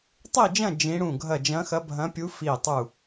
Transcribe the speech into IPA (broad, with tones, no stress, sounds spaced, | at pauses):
tˤ i˥˧ d͡ʒ ɐ̃˥˧ d͡ʒ ĩ˦˥ ɽ ũ˥˧ ɡʱ ɐ˥˧ d͡ʒ ɐ̃˦˥ x ɐ˦˥ bʱ ɐ̃˦˥ pʲ u˦˥ f i˥˧ tˤ u˥˧